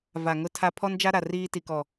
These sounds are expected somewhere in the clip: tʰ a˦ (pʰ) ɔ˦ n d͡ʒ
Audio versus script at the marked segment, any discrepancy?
no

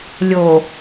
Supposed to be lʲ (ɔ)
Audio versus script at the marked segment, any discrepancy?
yes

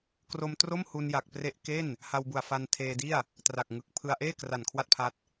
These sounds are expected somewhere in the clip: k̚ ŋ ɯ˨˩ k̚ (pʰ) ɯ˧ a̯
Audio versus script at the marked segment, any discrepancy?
no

